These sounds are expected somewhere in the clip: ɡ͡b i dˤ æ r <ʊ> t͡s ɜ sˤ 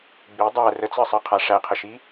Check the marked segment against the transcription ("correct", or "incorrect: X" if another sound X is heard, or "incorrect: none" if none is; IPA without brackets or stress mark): incorrect: ə